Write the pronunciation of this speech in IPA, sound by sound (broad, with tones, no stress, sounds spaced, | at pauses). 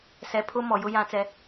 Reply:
s ɛ˨ pʰ ʊ˦ m ɔ˨ j ʊ˦ j ã˦ t͡s ɛ˦